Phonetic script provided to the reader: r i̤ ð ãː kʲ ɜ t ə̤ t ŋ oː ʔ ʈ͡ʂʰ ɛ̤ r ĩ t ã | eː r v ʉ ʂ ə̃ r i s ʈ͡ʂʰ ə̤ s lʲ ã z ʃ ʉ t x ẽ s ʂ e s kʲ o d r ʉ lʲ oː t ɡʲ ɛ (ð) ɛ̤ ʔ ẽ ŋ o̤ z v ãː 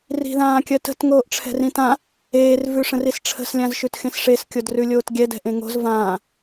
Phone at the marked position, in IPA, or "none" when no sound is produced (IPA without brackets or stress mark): d